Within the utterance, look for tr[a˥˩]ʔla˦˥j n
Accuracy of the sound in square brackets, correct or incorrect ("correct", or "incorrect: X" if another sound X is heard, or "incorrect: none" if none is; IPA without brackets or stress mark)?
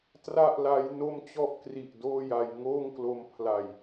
correct